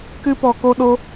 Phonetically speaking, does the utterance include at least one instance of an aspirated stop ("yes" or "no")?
no